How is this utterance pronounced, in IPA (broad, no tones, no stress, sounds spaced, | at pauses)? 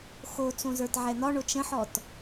x o t͡s õ z ə˞ t ʕ ɛ n̪ ɒ ɳ o t͡ʃ ə̃ ħ ɔ t